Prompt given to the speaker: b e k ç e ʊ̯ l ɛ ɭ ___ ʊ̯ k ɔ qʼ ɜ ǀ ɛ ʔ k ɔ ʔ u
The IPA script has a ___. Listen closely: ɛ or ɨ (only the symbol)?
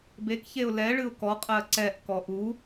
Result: ɨ